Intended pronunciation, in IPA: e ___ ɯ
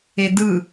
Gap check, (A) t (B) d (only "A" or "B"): B